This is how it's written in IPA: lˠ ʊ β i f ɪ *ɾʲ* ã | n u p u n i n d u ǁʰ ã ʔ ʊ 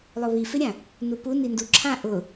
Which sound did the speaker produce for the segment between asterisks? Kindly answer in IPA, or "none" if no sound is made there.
ɾʲ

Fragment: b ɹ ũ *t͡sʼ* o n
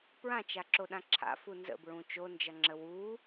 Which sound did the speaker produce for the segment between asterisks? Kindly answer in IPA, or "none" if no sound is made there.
t͡ʃ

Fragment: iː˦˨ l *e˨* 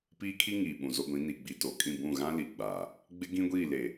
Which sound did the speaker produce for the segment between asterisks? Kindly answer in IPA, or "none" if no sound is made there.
e˨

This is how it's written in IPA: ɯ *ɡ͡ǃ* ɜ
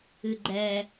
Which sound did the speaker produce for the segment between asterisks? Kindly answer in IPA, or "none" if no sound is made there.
ɡ͡ǃ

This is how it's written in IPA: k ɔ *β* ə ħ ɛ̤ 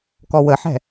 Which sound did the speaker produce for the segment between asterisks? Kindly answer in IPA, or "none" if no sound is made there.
w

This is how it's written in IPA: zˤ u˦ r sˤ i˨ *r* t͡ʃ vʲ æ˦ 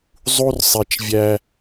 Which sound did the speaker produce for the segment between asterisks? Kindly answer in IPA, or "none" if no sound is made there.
none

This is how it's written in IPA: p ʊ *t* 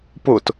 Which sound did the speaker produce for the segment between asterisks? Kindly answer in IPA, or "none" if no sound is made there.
t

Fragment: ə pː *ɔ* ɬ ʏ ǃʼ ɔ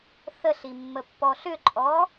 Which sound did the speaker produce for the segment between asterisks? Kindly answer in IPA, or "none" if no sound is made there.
ɔ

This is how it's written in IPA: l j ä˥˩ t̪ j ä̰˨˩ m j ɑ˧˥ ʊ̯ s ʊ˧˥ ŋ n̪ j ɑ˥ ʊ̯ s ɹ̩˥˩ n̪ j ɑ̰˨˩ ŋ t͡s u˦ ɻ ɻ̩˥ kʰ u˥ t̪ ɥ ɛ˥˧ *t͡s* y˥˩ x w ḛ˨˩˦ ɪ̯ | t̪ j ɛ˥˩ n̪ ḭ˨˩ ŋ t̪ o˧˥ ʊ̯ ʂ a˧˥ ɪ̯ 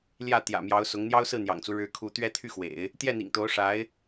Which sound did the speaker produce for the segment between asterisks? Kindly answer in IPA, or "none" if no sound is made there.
t̪ʰ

